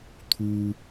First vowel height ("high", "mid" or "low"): high